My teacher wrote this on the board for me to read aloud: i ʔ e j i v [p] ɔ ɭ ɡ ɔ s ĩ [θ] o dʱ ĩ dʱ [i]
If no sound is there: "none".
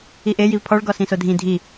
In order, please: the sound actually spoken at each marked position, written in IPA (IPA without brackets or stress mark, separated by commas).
pʰ, s, i